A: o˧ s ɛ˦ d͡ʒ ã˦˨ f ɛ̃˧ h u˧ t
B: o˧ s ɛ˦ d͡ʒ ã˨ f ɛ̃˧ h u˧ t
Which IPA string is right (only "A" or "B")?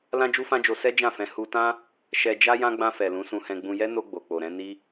A